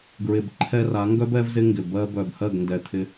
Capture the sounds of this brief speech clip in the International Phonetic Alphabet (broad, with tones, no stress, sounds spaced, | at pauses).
ɡ ɹ ɪ˨ b ǃʰ ɛ˧ r a˨˦ ŋ ɡ œ˦ b ɛ˦ v z ɪ˦ ŋ ɡ ɪ˨ b ɜ˧ b œ˨ b h ɜ˦˨ ɡ n d ɛ˧ t̪ʰ ɪ˦